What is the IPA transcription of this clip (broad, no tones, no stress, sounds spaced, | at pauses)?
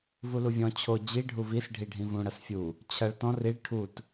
v u l u vʲ ɔ̃ t͡ɕʰ o d͡ʑ i ɖʱ u v i s ɖʱ i ɖʱ ĩ v ũ ɽ ɐ s fʲ u | t͡ɕʰ ɐ ɭ t ɔ̃ r i ɭ ʈʰ u t